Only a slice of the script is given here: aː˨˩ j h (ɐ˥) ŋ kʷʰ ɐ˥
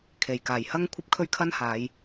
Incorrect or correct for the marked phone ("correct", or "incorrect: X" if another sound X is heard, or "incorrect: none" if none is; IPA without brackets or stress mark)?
correct